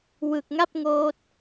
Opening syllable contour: low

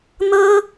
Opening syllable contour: high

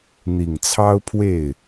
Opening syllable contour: low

